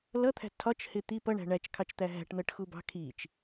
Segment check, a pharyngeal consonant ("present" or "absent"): absent